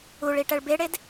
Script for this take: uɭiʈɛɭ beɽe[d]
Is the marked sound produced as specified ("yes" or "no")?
yes